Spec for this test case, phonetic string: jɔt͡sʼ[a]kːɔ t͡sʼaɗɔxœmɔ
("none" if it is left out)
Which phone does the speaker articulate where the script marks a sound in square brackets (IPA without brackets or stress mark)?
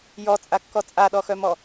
a